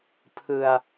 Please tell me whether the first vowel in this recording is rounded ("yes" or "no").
no